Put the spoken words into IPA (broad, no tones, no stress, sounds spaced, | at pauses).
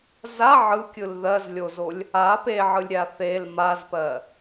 z a ʕ ɯ kʲ ɯ l ð ɜ z lʲ o z o lʲ | a p e ʕ ɯ lʲ ɾʲ a θ e l m a z p ɜ